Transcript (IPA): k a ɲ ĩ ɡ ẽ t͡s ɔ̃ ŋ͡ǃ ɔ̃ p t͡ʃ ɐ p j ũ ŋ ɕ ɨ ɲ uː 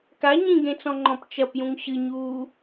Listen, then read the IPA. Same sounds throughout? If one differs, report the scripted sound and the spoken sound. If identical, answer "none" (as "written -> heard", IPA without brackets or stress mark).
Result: none